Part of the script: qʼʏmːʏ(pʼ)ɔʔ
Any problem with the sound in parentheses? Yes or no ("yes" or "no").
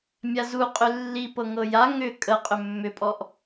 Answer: no